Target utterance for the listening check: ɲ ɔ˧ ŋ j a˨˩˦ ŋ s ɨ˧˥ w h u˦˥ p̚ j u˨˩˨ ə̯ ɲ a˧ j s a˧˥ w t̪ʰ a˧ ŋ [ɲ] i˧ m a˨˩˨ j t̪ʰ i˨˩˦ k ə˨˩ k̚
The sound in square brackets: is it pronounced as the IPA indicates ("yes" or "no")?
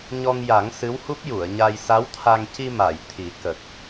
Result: no